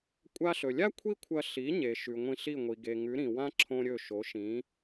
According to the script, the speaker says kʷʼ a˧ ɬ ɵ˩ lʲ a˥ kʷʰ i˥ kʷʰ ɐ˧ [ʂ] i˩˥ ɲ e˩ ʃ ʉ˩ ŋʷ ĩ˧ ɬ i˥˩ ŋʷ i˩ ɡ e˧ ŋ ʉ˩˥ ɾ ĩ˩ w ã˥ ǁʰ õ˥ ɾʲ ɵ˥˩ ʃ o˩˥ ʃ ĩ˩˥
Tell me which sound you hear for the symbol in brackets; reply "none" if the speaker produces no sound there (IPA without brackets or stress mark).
ɬ